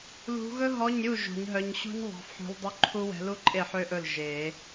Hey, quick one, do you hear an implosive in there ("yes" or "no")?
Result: no